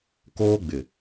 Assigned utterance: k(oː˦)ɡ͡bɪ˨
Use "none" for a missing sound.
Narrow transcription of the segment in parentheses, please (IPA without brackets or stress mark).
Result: oː˦